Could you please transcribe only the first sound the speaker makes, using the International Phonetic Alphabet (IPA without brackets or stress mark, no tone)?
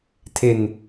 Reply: tʰ